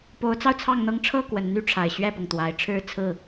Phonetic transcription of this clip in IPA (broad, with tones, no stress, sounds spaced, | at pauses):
p o˨˦ ʊ̯ t͡s ɑ˧ ʊ̯ t͡sʰ ɑ˥˨ ŋ n̪ ɤ˦ ŋ ʈ͡ʂʰ ɤ˥˨ k w ə˨˩ n n̪ y˥˨ ʈ͡ʂʰ a˨˩ ɪ̯ ɕ ɥ ɛ˥˨ p ʊ˩ ŋ t̪ w a˨˩ ɪ̯ ʈ͡ʂʰ ɻ̩˥˨ t͡sʰ ɹ̩˥˨